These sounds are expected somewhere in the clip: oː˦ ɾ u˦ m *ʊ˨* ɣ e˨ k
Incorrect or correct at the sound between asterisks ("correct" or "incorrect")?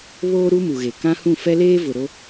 incorrect